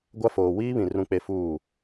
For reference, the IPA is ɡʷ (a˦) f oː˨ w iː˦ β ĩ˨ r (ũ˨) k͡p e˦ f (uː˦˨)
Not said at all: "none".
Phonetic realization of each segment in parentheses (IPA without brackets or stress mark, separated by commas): a˦, ũ˦, uː˦˨